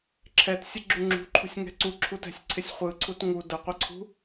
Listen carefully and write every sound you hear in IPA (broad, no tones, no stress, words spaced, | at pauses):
ǁʰɛtsʲə ɡ͡ǁuŋ͡ǁṳǃʰṳsʲ ŋɛ̤ǀuǁʰut ɛ̤sʲǀʰɪsʲχʷɯǀʰut ŋu də qʷəǀʰṳ